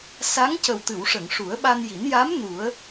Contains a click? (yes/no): no